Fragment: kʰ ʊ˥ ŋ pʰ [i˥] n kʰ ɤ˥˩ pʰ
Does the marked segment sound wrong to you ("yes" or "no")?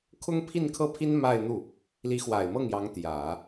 yes